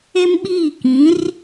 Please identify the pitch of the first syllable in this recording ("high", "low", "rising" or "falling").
high